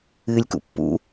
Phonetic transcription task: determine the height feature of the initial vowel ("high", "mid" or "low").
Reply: high